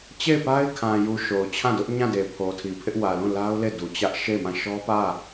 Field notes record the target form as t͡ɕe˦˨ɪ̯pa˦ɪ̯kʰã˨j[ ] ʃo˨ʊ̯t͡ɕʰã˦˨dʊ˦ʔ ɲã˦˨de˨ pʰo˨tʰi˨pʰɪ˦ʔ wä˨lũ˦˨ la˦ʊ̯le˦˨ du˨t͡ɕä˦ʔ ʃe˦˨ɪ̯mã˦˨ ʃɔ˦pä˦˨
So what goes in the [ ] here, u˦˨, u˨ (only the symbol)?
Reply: u˨